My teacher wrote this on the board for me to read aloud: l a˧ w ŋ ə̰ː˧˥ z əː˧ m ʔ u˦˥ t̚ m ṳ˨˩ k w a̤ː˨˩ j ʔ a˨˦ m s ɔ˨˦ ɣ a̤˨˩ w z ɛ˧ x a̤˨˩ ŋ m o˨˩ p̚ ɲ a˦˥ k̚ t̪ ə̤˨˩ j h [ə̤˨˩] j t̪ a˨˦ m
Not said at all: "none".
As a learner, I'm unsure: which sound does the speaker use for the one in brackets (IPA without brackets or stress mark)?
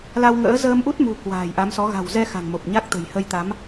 ə˧